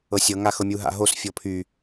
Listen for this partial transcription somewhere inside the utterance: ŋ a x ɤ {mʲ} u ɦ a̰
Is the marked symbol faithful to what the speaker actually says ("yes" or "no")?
yes